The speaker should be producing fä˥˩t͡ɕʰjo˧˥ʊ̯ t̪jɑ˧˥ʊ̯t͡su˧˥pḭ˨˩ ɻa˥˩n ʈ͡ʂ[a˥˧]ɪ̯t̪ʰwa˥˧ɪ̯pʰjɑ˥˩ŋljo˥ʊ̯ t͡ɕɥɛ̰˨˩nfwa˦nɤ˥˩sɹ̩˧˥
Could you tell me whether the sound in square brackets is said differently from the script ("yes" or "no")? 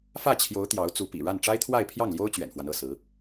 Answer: yes